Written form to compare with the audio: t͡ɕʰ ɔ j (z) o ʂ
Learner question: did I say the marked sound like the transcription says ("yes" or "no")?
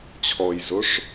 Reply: yes